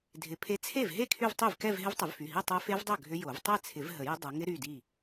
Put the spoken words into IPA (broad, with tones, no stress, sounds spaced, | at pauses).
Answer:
dʱ ɪ˨˦ pʰ e˦˥ t͡sʰ e˥˩ v ɦ e˥˩ kʰ y˥˧ v tˤ y˥˩ v k ɛ˥˧ v ɦ ɪ˦˥ v tˤ ʏ˨˩˦ v f y˩˧˩ ɦ i˥˧ tˤ œ˦˥ f e˦˥ v dˤ œ˥˩ ɡʱ ʏ˦˥ j o˨˩˦ v tˤ ɛ˥˧ t͡sʰ ɪ˨˩˦ v ɦ ə˨˩˦ j ʏ˦˥ dˤ œ˨˦ ŋ ɪ˦˥ ɾ y˩˧˩ d i˥˩